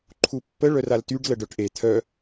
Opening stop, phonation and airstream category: click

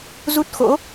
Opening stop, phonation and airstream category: plain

